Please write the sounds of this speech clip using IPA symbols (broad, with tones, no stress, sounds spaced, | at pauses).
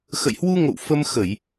x ə̰˧˨ j h w u˧ ŋ o̰˧˨ w f ə˧ m x ə˧˩˨ j